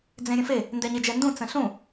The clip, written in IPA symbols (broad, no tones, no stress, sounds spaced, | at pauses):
d͡z ẽ ɾʲ ə̃ f e | n d ɛ ɲ e d͡ʒ ɛ n d ũ t͡s ə̃ ɬ ũ